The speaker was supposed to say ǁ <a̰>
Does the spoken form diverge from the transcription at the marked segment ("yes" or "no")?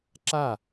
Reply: yes